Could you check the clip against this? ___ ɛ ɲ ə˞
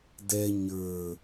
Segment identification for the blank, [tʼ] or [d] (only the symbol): d